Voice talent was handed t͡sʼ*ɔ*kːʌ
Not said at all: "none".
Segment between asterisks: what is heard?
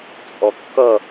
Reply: ɔ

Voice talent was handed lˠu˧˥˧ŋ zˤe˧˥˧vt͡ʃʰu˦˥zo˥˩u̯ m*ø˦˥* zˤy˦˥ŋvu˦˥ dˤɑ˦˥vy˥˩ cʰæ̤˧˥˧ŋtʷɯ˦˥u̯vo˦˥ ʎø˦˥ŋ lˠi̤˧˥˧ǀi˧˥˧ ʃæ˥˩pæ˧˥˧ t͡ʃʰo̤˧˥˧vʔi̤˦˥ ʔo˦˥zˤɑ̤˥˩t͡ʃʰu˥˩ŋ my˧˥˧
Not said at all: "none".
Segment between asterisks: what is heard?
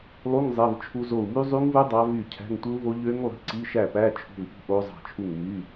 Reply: y˦˥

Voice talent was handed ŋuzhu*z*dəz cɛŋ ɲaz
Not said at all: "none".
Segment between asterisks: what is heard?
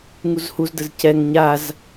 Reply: z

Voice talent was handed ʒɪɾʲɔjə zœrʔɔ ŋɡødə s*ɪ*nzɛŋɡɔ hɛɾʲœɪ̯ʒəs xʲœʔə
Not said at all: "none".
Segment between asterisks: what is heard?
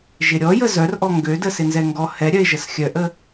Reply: ɪ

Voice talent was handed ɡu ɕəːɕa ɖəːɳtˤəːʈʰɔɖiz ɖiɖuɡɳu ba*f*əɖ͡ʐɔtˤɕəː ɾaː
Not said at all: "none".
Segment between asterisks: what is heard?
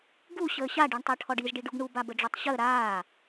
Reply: b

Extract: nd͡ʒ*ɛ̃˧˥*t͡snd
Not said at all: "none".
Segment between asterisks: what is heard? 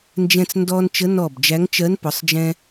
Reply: ɛ̃˧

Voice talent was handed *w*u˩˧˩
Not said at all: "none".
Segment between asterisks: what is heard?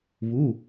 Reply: β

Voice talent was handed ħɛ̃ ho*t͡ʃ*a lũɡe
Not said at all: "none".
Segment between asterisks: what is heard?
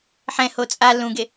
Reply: t͡sʼ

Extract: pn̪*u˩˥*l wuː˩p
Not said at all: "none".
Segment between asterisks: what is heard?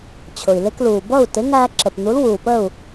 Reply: u˩˥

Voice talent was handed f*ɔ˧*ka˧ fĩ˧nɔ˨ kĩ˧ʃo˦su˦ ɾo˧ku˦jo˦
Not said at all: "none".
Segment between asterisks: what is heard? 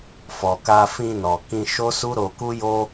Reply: ɔ˨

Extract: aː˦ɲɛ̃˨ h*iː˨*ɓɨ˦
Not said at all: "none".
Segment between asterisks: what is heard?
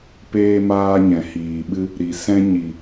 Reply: iː˨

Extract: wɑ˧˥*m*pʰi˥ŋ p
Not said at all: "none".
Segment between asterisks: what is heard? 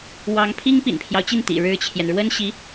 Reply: ŋ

